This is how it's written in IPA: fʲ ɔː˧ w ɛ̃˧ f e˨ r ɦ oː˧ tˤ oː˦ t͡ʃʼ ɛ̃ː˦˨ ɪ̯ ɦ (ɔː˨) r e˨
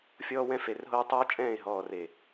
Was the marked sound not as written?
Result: no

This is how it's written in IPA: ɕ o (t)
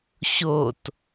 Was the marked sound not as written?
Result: no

